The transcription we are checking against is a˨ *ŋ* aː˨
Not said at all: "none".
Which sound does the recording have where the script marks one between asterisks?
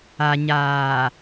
ɲ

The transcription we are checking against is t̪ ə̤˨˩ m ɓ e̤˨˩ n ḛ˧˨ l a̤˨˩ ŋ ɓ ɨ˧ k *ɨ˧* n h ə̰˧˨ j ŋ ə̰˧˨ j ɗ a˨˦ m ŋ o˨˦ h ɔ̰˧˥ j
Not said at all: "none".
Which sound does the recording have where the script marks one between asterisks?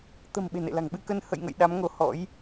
ə˧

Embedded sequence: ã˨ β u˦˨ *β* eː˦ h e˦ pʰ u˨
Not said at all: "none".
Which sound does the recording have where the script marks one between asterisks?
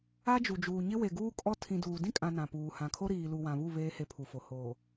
β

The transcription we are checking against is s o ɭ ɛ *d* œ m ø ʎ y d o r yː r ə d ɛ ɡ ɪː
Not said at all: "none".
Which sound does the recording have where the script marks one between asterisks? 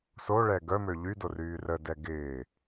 ɡ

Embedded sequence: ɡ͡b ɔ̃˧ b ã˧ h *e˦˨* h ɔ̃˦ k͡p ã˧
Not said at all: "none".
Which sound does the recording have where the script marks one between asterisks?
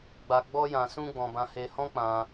e˧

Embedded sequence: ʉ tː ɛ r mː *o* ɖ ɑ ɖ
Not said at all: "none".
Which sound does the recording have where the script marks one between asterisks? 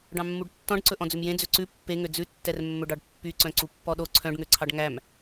ɵ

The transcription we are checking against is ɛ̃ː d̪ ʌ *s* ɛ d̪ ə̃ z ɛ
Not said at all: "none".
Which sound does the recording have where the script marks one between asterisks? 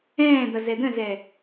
z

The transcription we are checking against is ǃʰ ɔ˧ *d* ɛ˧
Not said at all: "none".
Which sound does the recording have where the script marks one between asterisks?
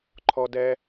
d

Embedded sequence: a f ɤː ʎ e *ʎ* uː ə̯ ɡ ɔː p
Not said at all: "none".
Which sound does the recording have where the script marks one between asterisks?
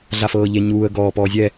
ɲ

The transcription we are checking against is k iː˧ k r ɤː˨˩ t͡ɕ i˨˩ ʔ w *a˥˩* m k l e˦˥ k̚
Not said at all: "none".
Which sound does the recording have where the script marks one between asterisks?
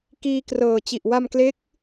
a˧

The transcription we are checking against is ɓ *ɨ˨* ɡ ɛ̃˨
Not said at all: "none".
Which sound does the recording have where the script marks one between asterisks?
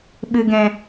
ɨ˨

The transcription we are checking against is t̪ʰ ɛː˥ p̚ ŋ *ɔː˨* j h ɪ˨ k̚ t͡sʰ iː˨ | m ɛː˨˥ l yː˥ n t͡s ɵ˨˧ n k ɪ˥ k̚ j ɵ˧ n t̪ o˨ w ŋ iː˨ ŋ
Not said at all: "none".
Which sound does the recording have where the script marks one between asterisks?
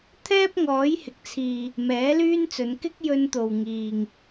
ɔː˨˥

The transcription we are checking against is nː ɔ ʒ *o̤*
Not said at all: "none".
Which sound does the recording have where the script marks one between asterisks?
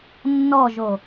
o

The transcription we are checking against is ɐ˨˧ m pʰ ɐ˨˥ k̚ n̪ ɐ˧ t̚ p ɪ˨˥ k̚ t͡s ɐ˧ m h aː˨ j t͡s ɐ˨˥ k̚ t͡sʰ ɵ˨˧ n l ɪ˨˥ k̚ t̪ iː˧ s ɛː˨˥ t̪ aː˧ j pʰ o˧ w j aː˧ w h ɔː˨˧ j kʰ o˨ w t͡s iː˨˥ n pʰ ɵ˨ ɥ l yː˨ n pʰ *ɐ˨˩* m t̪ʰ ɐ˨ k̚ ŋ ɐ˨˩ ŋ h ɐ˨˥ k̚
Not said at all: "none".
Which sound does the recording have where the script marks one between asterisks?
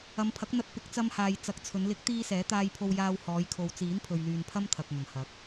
ɐ˥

